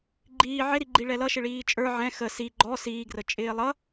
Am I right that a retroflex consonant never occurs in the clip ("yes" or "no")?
no